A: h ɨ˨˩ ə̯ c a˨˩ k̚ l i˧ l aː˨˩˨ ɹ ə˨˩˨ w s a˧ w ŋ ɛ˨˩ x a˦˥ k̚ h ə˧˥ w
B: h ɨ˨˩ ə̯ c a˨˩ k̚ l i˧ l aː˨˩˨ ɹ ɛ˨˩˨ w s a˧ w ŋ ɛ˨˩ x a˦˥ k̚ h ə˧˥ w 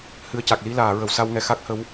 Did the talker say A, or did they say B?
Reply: A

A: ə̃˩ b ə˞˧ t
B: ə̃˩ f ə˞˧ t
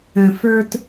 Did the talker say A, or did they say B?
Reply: B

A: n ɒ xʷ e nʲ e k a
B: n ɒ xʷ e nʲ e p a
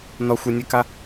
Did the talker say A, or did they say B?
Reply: A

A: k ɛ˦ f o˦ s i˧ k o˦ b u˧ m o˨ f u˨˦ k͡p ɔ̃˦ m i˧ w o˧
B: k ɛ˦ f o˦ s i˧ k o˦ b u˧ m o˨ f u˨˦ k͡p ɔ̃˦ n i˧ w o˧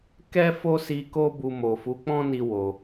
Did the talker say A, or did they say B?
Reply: B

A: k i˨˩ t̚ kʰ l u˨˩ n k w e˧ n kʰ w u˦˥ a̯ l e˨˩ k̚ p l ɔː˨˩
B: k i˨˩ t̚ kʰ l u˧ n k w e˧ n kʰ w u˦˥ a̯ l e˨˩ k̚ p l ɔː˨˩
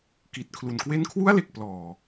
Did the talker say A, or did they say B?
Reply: A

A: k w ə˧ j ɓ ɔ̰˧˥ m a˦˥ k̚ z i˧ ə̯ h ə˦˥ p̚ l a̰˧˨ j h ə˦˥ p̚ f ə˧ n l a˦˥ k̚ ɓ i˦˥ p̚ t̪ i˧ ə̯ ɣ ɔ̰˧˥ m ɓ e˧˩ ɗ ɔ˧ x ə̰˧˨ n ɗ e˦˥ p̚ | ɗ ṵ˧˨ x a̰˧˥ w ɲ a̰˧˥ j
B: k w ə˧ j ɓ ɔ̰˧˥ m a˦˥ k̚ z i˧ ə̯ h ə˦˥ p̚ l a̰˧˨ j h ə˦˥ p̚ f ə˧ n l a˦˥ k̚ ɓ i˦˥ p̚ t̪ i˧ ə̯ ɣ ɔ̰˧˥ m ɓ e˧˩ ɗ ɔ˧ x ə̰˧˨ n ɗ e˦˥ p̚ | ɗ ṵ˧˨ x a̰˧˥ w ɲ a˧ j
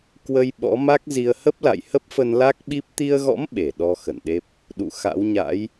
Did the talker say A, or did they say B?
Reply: A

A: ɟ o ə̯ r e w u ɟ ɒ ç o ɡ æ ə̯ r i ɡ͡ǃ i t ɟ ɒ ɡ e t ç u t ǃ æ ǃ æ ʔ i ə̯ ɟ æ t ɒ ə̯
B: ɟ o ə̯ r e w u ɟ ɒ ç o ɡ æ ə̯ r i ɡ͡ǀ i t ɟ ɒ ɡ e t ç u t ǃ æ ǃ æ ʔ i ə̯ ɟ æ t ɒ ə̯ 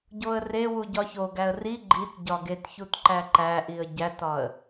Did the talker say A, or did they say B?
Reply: A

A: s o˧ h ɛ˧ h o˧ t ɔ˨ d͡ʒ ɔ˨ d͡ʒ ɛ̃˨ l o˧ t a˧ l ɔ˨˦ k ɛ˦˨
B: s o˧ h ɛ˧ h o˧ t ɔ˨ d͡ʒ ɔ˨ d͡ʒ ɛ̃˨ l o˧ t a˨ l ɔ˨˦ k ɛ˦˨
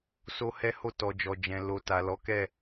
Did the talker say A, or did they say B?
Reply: B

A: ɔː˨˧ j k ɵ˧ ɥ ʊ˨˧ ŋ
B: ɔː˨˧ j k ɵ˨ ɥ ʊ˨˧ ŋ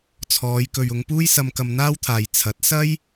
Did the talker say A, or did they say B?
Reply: B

